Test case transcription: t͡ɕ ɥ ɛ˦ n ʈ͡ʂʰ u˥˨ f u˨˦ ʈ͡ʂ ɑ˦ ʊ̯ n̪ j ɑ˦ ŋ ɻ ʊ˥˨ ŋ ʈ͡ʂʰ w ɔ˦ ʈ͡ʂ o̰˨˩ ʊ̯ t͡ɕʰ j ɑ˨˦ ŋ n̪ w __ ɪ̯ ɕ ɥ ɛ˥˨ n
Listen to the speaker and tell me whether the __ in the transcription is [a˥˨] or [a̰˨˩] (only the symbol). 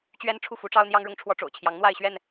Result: a˥˨